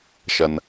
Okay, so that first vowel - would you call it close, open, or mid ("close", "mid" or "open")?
mid